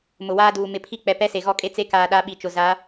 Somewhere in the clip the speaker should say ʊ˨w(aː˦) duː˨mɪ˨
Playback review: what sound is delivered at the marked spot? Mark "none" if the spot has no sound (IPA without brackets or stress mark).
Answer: aː˦